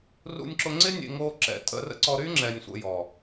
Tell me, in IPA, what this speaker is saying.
rṵ˧nʲǁʊ˧ŋ͡ǀɪ˦ nʲḛ˧ ŋo˧ǁɛ̰˨ tʼə̰˧rə̰˦ ǀɔ˧ɾy˦ŋ͡ǁɛ˨nʲ sʷə̰˧jɔ˨

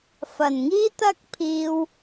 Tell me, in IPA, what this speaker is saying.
fɐ˨˩nŋiː˥t̪ɐ˥k̚pʰiː˧w

